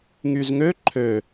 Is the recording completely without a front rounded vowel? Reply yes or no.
no